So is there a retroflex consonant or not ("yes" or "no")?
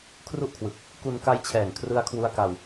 no